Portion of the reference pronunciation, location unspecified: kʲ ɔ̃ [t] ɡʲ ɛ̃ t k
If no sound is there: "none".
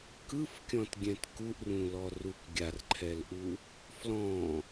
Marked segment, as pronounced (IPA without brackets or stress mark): t